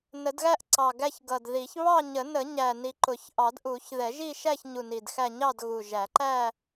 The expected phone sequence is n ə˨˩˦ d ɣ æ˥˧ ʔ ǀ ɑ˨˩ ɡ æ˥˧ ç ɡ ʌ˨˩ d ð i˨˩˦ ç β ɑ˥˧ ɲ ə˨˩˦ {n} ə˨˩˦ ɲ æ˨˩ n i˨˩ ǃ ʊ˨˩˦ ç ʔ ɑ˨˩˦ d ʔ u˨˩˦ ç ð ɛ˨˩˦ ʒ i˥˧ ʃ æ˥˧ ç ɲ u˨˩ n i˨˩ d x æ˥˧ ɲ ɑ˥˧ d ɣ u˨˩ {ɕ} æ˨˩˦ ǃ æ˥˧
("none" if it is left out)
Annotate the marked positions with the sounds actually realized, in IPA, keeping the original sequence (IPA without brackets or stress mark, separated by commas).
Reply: n, ʒ